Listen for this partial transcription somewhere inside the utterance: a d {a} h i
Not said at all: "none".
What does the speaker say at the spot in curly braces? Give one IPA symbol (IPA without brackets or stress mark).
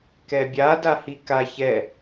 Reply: a